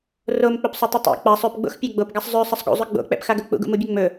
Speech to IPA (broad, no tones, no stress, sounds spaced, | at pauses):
r o m k͡p ɵ p sˤ ɵ tˤ ɘ tˤ ṵ k͡p a sˤ ø p ɡ͡b o̰ x pʲ ɛ ɡ͡b o p ɡ a sˤ zˤ ø sˤ ə sˤ ɡ ṵ zˤ ø ɡ͡b o̰ k͡p ɛ̰ p x a ɡ ɵ k͡p ṵ ɡ ṵ m u bʲ ɵ ŋ͡m ɵ